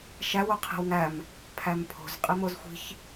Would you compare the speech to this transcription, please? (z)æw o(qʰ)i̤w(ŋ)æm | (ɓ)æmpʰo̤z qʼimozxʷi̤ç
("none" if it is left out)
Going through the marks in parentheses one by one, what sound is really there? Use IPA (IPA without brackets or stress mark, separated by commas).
ʃ, qʰ, ŋ, pʰ